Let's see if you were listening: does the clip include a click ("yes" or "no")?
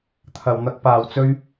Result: no